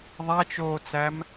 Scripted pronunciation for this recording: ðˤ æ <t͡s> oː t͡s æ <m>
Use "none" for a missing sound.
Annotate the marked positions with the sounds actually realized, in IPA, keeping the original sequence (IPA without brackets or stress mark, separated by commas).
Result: t͡ʃ, m